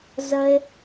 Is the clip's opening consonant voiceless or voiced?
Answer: voiced